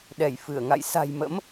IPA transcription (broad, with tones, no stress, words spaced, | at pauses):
ɗɛ˧˩jfɨ˧˩ə̯ŋa̰˧˨j sa̤˨˩jmə̰˧˥m